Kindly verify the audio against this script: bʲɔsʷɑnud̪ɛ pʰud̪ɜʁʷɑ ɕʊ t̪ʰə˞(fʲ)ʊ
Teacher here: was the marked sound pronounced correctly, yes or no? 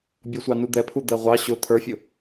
yes